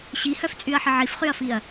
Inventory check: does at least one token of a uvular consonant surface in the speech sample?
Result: yes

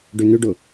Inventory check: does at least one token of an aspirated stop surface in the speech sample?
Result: no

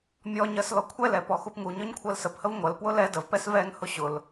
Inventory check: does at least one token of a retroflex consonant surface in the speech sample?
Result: no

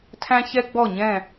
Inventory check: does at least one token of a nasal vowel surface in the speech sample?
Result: yes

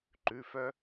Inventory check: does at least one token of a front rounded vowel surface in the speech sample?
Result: yes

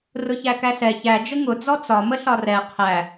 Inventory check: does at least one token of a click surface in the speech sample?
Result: no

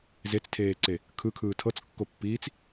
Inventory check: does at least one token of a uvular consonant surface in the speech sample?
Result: no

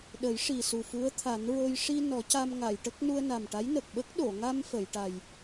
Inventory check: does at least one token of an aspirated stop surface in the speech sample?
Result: yes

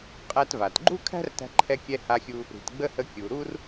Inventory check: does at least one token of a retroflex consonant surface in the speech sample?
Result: no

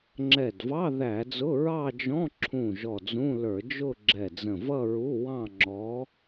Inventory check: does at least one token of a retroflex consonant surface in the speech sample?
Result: no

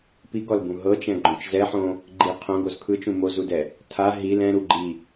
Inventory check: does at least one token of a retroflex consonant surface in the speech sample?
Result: no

